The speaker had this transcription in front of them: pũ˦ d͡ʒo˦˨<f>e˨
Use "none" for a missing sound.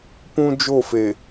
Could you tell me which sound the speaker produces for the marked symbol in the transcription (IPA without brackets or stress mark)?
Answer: f